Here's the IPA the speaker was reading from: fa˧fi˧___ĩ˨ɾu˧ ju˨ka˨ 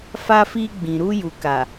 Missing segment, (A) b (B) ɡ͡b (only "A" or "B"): B